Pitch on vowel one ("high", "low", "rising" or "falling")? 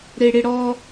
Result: high